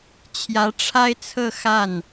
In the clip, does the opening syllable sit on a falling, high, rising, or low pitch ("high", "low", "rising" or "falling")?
rising